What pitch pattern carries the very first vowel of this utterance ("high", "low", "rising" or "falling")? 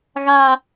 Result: low